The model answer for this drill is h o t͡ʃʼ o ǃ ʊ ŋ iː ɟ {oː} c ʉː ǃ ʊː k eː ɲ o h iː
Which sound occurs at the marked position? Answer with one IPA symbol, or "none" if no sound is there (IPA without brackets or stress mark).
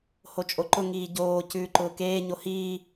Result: oː